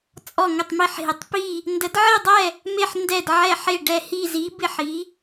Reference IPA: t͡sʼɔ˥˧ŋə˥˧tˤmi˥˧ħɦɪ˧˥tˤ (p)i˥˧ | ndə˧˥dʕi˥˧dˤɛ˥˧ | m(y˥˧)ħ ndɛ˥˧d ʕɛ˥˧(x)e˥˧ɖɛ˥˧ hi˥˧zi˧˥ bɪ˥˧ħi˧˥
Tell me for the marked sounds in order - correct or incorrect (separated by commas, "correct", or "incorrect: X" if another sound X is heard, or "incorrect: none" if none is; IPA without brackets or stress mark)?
correct, incorrect: e˥˧, incorrect: ħ